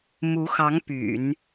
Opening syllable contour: rising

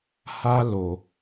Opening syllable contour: high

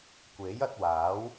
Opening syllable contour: rising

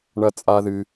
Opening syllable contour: high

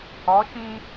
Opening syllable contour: rising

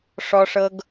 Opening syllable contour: high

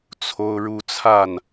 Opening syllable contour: high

